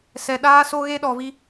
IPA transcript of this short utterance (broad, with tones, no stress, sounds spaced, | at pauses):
s ɛ˨ ɗ aː˦ s o˦ ɣ e˦ ɗ ɔ˨ v i˦